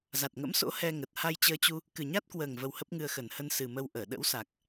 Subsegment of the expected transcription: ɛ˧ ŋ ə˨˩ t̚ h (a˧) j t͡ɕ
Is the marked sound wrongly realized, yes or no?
no